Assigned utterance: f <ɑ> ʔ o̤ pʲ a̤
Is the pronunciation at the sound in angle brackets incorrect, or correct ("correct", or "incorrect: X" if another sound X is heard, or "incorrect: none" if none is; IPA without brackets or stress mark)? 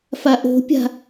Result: incorrect: a